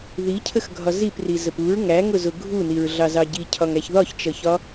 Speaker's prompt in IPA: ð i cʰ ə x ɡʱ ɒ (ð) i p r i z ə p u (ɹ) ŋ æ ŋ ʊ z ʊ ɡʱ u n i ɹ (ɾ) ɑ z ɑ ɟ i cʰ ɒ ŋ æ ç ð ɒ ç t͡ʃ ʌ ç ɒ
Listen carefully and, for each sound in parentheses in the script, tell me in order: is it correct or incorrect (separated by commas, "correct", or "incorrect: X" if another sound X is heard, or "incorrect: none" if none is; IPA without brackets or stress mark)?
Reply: incorrect: z, correct, incorrect: ɮ